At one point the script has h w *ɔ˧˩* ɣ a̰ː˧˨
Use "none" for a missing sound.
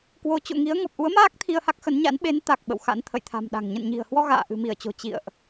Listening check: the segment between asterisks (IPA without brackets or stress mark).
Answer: ɔ˧